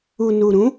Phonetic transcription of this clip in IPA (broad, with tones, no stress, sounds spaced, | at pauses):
u˨ n u˨ ɾ ũ˨˦